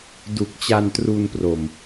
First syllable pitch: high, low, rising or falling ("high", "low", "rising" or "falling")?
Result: low